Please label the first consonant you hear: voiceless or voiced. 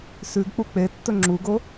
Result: voiceless